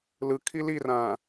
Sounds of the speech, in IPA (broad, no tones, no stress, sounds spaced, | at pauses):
l ɯ kʰ i l i r ãː